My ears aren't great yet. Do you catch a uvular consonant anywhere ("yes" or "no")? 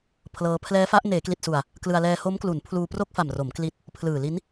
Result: no